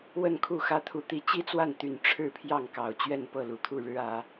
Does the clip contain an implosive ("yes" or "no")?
no